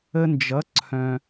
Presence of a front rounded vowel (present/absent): present